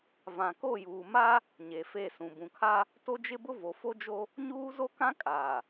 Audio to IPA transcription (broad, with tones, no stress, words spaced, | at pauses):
vã˨ko˦˨juː˨ma˦ | ɲe˨fe˦˨sũ˨ bũ˨kʰa˦ | to˦d͡ʒɪ˦bʊ˦ vo˨fo˦d͡ʒo˦ | ɲuː˦zo˦kã˦kʼaː˨